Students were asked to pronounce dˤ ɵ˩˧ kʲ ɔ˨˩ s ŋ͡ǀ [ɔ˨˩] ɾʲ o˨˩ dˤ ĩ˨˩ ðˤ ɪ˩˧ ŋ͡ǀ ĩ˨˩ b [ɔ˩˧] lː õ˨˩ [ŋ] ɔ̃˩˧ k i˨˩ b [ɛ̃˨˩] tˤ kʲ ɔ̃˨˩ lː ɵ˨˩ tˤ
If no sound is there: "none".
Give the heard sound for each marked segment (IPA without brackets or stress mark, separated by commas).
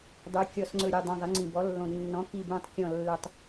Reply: ɵ˨˩, ɔ˩˧, nː, ɛ̃˨˩